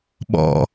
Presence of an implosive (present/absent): present